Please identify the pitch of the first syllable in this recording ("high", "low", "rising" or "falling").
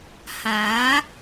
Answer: rising